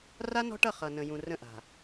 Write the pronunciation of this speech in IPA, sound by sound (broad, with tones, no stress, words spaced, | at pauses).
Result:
ra˦nɔ̤˦ʈʌ˦˨ χʌ˨ nə̃˨jũ˨rə̃˦˨ʔa̤˨